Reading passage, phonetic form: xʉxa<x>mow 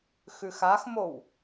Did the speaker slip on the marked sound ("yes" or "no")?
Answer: no